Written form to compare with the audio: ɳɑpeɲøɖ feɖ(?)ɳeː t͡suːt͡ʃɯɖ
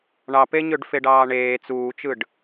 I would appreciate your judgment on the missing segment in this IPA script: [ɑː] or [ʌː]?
ɑː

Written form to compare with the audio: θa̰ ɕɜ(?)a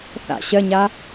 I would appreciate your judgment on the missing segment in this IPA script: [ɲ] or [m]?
ɲ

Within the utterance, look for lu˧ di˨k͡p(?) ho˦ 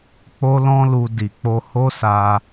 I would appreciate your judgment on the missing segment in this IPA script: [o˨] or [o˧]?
o˧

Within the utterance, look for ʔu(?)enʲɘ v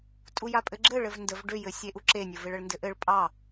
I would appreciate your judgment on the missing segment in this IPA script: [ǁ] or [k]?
ǁ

